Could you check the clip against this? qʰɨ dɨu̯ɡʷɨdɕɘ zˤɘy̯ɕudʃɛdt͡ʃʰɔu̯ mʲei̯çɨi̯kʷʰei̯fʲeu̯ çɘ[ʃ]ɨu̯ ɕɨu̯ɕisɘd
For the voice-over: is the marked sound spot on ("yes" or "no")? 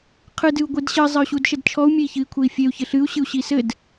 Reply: no